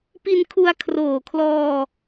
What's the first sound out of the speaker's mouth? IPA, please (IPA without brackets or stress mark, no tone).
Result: p